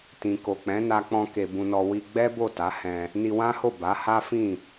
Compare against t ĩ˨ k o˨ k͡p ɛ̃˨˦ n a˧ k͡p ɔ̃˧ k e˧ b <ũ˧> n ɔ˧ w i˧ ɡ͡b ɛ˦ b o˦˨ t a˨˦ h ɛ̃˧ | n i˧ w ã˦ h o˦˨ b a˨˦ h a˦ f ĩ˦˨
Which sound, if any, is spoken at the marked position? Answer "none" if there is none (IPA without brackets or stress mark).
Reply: ũ˧